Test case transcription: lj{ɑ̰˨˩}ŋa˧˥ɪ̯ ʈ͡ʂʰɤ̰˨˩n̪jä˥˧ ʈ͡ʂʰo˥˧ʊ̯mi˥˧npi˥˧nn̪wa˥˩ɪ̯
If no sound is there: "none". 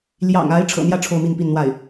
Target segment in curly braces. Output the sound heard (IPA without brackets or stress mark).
ɑ̰˨˩